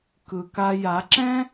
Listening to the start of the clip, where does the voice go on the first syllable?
low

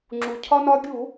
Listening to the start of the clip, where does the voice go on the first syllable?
low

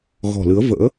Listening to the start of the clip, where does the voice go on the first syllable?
low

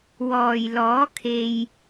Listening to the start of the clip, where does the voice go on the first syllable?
low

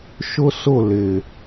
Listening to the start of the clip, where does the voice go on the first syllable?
high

